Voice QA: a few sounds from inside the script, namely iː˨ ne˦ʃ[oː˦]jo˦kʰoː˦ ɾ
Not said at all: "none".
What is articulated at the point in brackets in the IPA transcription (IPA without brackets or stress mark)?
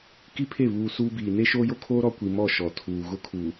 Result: oː˦